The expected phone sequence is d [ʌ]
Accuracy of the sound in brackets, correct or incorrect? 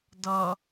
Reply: correct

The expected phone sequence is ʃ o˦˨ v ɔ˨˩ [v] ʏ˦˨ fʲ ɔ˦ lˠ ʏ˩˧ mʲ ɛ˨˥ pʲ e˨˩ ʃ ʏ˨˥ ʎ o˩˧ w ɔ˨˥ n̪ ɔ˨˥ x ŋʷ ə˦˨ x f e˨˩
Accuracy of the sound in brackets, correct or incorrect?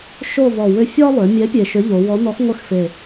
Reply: incorrect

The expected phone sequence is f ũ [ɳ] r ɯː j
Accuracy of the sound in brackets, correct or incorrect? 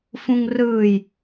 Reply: incorrect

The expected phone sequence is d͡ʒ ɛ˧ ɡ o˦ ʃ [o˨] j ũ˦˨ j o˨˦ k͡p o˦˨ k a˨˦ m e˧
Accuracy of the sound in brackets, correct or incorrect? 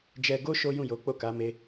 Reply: incorrect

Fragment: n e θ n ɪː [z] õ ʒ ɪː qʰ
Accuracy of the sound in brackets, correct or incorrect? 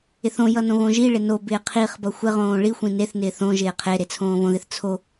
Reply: incorrect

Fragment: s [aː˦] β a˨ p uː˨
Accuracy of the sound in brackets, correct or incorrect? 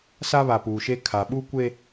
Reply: incorrect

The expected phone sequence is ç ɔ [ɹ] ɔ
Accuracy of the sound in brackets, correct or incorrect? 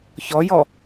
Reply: incorrect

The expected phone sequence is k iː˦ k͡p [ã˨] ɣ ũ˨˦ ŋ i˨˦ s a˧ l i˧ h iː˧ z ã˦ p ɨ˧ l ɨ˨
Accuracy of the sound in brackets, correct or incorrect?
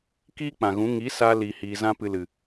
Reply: correct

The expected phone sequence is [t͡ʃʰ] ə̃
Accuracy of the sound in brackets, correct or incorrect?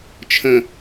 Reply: correct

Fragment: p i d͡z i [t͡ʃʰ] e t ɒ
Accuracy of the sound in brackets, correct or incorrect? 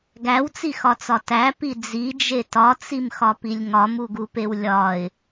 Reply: incorrect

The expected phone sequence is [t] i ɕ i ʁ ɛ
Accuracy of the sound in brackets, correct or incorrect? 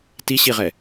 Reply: correct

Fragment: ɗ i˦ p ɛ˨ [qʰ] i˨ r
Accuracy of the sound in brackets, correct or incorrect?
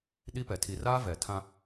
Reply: incorrect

